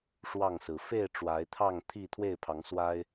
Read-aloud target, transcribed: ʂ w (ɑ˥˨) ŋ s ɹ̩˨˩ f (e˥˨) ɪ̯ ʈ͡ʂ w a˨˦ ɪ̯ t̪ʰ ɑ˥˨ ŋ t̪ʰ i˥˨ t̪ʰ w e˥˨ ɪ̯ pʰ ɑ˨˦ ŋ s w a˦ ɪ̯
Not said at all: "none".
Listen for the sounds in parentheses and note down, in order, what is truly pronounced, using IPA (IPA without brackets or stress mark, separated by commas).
ɑ˥˨, e˥˨